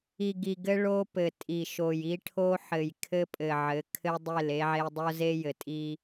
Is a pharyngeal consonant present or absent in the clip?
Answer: present